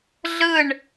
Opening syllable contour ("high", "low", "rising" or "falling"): falling